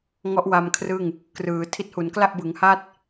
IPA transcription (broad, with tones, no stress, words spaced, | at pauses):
ŋɔ˦˥ʔwa˧mkʰrɯ˥˩ŋ | krɯː˩˦ tʰi˦˥t̚hu˩˦n kla˥˩ʔbɯ˩˦ŋha˥˩t̚